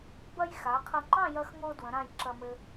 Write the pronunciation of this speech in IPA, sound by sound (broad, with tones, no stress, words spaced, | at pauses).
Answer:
bɐ˧j xa˩˧qʰɐ˧ŋ͡ǃɑ̃˥˧ jɐ˧xŋo˧ dwə̃˩˧ɾã˧˩j ǁɐ˧mɘ˧